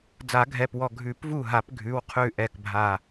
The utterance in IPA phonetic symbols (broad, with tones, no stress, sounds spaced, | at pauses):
d͡z a˨˩˦ ɡʱ ɛ˩˧˩ p w ɔ˧˩ ɡʱ ʉ˨˩˦ p v u˧˩ ɦ a˨˩˦ p ɡʱ ʉ˩˧˩ w qʰ ʉ˧˩ ʔ ɛ˧˩ k bʱ a˧˩